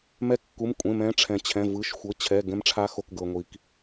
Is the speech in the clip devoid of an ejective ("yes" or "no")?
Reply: no